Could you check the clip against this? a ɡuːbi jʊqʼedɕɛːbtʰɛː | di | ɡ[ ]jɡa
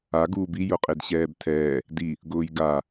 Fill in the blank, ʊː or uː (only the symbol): ʊː